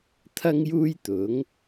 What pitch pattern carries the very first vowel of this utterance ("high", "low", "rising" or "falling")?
high